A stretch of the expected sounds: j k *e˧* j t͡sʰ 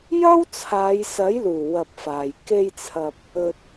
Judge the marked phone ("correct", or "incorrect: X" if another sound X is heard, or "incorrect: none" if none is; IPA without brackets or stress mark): correct